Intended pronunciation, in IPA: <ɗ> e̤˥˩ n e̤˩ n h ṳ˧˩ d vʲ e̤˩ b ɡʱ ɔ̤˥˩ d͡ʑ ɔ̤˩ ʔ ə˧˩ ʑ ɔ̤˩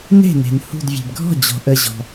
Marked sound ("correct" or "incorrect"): incorrect